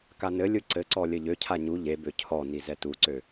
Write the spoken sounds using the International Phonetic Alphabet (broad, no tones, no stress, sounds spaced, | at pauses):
k a n ɘ lʲ ɯ ǀ ɘ ǀ ɔ lʲ ɘ ʎ ø cʰ a ɲ u ʎ e b ø cʰ ɔ n i z ɛ t u ǀ ø